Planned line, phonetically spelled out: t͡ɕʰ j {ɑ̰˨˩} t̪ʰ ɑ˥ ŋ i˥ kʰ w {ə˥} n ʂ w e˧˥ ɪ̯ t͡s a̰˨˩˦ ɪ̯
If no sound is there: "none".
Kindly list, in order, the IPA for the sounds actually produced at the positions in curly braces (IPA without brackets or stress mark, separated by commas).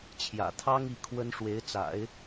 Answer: ä̰˨˩, ə˥